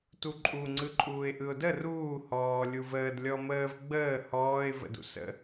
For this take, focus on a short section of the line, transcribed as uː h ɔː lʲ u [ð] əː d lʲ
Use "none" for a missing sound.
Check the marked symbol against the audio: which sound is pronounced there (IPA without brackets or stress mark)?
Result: v